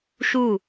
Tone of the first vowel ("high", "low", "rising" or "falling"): falling